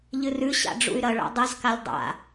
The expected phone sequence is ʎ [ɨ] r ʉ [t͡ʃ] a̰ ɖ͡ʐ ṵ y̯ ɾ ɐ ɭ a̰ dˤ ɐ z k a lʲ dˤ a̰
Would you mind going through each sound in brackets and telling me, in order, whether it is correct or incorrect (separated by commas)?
correct, incorrect